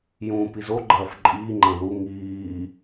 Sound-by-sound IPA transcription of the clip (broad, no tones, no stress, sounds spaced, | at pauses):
j ũː p i z o ɡ͡ǃ ɐː f ǃʼ iː ŋ͡ǃ ɐ̃ ð u ŋ iː